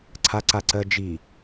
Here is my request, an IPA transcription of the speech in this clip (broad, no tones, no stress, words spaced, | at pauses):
ǀʰaǀaǀɜd͡ʒi